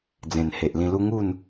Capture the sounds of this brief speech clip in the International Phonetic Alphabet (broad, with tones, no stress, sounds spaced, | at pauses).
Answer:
d͡z ẽ˨˩ n h e˨ ʔ l ĩ˧ l u˦ ŋ u˥˧ n